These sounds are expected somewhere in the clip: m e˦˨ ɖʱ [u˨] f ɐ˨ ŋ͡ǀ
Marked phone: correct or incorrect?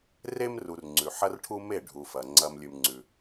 correct